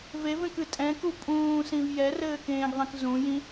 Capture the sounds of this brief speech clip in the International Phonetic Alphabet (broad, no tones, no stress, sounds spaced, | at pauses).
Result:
v e v ẽ k ɨ tʼ ɛ̃ k u pʼ ũː s ĩ v j ɛ r ɘː k ẽː ɡ ðˤ ĩ k z ũ j ĩ